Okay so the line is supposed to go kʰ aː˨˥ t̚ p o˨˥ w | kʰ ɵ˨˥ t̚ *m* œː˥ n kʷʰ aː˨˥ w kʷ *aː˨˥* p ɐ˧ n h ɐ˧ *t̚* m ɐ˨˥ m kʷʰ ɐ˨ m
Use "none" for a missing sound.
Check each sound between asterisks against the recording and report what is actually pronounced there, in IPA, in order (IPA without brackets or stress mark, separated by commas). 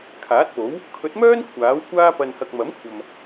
m, aː˥, k̚